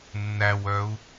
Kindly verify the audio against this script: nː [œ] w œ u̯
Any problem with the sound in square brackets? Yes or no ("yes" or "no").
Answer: yes